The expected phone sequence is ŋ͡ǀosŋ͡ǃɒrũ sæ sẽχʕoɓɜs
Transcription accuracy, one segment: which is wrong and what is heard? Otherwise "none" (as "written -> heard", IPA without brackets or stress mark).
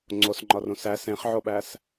ɜ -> æ